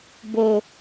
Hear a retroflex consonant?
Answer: no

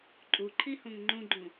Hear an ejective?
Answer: yes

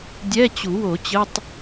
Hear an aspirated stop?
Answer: no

